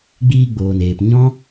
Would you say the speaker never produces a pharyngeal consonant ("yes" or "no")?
yes